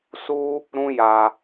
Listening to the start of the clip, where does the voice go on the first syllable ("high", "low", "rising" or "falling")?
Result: high